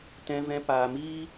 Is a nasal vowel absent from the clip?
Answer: no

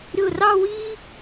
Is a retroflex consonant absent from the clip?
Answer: yes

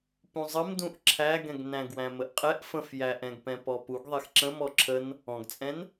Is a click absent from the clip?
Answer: no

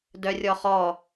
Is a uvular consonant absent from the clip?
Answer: no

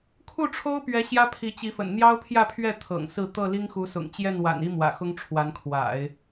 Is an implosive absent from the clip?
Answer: yes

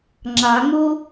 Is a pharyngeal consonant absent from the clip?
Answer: yes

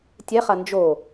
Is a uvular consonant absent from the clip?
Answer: no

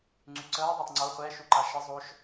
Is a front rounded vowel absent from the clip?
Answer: no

